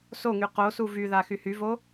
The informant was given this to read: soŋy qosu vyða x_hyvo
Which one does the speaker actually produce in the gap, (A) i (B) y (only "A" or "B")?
B